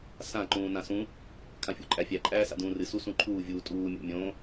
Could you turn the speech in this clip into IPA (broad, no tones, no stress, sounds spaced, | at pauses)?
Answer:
s ã ǃ ũː n ã s ũ | kʰ ã fʲ o̰ ǃʼ æ fʲ æ ǃʼ æː s a̰ d ũː r ɨ s u s ũ ǃʰ uː vʲ uː tʼ uː mʲ o̰ mʲ õ